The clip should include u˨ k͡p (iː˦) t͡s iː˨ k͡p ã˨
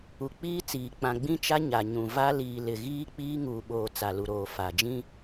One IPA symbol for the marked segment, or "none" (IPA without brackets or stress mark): iː˦